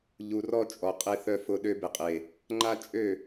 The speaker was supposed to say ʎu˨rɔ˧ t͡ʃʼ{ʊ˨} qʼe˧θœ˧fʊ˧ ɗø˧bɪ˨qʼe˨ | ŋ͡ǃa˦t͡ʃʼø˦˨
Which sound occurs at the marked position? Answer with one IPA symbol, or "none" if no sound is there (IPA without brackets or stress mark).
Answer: ɔ˨